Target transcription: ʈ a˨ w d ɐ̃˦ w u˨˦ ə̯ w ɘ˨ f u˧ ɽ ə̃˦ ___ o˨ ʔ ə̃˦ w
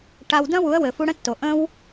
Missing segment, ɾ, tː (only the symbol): tː